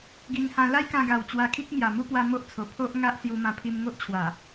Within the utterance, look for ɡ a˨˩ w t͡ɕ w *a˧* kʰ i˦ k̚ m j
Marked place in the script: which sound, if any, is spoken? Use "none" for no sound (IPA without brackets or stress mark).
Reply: a˧